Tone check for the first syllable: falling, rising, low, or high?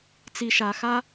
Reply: low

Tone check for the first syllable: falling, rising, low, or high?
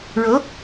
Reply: rising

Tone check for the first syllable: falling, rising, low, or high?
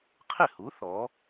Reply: falling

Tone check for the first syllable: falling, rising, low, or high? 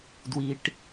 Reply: low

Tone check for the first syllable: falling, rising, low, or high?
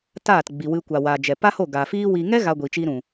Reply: falling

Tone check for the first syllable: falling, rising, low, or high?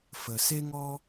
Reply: low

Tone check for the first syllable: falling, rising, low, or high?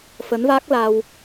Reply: rising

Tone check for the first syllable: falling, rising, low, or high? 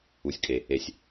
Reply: low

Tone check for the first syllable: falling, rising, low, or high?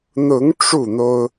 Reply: rising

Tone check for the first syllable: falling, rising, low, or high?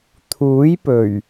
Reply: rising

